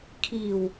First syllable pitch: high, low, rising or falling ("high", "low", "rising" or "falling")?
low